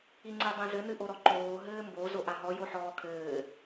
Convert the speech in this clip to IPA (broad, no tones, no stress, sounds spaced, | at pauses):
i ŋ͡ǀ e dˤ ẽ z ɘ n ɨ ʔ o ɾ ɔ ǃ oː ɦ ɘː m b o z o ʔ a ɦ ɔ j o ħ ɔː kʰ ɘː